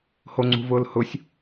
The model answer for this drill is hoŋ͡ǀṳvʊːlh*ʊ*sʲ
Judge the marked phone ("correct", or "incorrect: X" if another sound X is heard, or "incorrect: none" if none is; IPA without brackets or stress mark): correct